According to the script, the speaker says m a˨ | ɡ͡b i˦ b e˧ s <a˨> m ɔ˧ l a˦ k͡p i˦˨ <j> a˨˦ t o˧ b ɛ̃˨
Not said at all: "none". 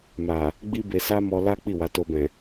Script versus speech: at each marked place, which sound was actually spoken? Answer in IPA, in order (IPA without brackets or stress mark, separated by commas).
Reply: a˦, w